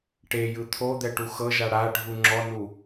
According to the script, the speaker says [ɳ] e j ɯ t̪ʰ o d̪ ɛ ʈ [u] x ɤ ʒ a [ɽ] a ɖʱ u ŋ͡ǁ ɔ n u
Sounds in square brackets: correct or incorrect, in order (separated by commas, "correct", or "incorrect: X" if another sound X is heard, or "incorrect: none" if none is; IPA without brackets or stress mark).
incorrect: ʈ, correct, correct